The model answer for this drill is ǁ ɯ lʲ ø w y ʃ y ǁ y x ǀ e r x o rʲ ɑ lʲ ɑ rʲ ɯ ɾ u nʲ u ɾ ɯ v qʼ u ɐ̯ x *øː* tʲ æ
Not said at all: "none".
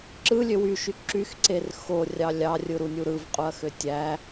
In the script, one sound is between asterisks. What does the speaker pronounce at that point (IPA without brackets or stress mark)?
ø